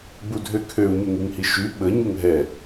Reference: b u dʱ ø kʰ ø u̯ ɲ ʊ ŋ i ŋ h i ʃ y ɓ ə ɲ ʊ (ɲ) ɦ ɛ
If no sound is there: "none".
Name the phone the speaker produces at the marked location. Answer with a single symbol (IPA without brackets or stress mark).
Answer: ŋ